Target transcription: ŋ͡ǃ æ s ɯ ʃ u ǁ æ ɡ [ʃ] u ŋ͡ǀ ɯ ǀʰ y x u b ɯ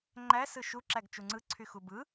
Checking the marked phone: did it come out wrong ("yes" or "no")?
yes